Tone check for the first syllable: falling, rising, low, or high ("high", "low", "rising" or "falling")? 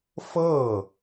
falling